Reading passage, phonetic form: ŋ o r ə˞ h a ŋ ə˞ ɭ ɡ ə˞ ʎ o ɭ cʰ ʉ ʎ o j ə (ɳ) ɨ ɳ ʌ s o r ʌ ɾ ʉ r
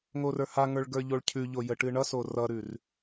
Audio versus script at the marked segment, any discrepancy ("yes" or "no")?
yes